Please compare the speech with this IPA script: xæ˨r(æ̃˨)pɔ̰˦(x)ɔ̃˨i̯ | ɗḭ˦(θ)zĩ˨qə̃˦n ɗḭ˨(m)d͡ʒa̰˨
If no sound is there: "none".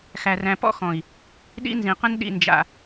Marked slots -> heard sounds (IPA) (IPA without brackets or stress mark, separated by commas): æ̃˨, x, n, n